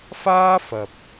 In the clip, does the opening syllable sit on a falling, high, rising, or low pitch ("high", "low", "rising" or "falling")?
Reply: high